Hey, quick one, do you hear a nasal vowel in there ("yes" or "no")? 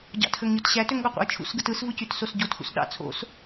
no